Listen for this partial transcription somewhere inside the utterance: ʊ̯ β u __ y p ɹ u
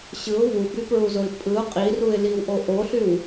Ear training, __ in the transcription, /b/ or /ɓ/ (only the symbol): b